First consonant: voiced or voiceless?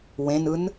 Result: voiced